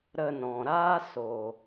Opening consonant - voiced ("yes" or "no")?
yes